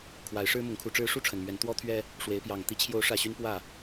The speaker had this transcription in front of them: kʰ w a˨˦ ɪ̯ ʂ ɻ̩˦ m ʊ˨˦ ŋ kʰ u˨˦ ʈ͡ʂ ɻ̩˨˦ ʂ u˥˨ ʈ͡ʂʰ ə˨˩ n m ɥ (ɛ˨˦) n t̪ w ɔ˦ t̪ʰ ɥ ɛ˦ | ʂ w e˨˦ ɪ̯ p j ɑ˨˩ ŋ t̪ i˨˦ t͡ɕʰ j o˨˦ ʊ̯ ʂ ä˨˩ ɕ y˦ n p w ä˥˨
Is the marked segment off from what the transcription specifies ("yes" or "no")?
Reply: no